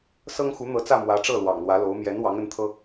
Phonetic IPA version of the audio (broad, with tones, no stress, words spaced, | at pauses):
sɤ˥ŋxu˧˥n̪ɤ˧˥t͡sä˥˩ mwä˧˥ʈ͡ʂɤ˥˩ lwɑ̰˨˩ŋlwä˧˥lo˧˥ʊ̯ mjɛ˧˥n wɑ˧˥ŋə˧˥nt̪ʰɤ˥